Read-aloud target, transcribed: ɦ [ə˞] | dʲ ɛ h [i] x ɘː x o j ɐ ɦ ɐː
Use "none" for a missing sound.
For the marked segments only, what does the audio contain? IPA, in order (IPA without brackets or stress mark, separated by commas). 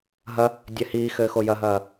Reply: ɐ, iː